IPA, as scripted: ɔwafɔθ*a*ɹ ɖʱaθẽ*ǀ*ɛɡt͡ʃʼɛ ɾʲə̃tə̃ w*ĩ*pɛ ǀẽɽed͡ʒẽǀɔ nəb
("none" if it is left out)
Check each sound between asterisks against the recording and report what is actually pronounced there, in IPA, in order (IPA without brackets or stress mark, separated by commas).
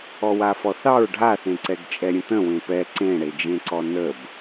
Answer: ɑ, ǀ, ẽ